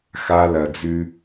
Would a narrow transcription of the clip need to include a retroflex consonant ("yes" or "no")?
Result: no